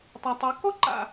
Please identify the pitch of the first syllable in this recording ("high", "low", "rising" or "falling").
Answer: low